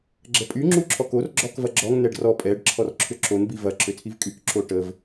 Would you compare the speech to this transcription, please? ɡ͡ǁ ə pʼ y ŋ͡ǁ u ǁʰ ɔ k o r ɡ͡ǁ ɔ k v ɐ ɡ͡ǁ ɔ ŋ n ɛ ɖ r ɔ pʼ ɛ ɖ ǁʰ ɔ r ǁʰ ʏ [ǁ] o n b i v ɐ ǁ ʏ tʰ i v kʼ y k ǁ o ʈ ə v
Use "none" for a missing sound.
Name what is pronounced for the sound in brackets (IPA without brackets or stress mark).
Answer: ǁ